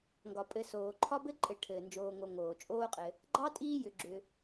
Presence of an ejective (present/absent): present